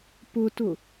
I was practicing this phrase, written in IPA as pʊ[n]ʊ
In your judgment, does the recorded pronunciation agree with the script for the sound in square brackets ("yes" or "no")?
no